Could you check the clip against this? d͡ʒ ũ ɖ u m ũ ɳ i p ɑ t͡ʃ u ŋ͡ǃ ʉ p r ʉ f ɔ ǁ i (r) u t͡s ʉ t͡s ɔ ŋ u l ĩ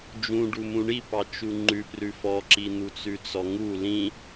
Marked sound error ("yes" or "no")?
yes